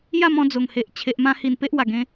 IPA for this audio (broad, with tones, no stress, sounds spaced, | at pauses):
j a˥˧ m ɔ̃˧ d͡z o˨˩ ŋ h e˨ ʔ t͡ɕʰ e˨ ʔ m ã˧ h i˧ n p e˦ ʔ w a˨˩ ɡ ẽ˧